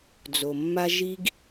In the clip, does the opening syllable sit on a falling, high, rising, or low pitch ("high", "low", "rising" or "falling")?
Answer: low